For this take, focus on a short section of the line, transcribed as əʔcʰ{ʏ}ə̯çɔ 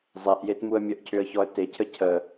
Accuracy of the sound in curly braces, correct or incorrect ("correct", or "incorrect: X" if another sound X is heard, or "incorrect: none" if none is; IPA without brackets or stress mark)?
correct